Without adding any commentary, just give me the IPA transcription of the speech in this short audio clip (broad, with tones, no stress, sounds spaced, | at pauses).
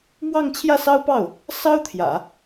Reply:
m w ɑ˥˧ ŋ t͡ɕʰ j ä˥˩ s ɑ˥ ʊ̯ p ɑ˥˩ ʊ̯ | s ɑ˥ ʊ̯ t̪ʰ j ä̰˨˩˦